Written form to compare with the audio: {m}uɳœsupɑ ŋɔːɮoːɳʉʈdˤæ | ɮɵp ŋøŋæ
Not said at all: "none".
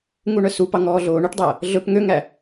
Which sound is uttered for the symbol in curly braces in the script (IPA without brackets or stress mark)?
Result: ŋ